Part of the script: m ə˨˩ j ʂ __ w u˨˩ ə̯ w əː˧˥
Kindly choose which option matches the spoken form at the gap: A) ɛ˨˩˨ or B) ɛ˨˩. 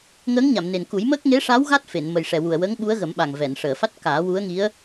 B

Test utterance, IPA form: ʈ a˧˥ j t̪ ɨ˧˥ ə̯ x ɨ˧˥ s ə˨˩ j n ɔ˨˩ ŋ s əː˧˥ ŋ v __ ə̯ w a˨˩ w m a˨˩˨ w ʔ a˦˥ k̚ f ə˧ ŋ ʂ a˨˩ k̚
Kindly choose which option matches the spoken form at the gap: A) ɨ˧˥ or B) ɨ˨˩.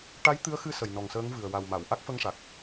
B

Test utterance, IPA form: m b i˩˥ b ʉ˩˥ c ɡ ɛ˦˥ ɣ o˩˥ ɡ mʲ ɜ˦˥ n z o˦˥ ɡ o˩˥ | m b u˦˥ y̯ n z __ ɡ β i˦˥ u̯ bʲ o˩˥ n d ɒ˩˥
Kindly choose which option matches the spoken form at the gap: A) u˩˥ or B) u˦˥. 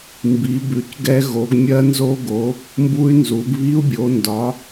A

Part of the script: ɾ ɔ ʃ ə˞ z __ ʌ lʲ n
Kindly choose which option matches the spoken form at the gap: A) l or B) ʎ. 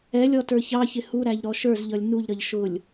B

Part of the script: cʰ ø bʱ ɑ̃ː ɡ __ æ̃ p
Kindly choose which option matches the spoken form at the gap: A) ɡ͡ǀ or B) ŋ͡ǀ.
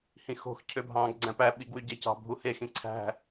A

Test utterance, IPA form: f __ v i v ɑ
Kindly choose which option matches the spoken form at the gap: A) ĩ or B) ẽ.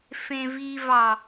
B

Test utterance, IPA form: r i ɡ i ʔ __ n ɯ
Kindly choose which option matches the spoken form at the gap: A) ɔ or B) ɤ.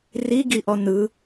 A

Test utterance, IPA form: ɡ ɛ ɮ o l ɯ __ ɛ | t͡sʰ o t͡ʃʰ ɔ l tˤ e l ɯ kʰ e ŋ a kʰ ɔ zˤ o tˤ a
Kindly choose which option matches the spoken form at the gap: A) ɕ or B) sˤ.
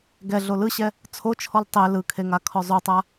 A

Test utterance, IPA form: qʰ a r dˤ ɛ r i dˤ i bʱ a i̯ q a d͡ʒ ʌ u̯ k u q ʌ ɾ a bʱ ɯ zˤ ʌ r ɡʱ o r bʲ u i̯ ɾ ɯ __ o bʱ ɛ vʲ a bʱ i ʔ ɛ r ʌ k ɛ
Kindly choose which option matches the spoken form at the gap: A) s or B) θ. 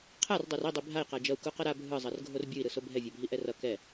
A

